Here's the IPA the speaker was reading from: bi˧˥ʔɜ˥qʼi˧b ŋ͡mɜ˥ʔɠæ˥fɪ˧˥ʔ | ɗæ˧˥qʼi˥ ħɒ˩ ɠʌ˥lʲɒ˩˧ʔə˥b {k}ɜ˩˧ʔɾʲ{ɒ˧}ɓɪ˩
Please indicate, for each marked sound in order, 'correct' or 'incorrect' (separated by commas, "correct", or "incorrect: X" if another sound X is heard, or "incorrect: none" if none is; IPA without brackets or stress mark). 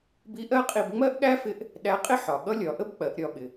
incorrect: k͡p, correct